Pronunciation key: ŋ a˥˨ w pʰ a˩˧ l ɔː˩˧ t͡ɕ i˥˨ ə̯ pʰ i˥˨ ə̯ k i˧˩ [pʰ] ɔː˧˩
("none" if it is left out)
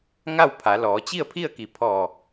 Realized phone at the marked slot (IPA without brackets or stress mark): pʰ